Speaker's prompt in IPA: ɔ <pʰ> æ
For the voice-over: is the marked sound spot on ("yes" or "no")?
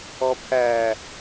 yes